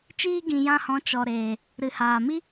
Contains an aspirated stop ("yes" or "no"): no